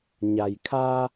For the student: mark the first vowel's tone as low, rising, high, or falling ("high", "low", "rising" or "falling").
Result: low